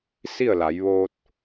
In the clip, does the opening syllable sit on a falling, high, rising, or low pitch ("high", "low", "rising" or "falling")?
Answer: falling